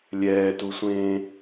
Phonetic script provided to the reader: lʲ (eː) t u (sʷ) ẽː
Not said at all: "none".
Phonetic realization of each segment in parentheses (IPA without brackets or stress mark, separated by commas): ɛː, sʷ